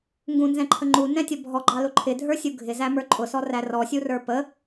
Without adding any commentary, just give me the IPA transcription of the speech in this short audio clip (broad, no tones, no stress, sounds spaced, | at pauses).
ŋ ɡ ũ n z ɛ̃ ǃʰ ə ŋ͡ǃ u n ɛ̃ tʲ ʌ bʱ ɔ ɡ͡ǃ ɑ l ʊ ǃʰ ɪ dʱ ə˞ sʲ u ɡʱ ɪ z æ m ə˞ ǃʼ ʊ s ɔ r æ r ɔ sʲ u r ə˞ p ə